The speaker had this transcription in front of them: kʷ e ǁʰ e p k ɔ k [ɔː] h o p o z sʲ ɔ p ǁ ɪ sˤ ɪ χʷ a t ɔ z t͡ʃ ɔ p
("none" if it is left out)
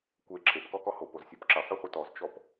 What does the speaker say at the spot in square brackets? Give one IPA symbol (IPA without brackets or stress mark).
ɔ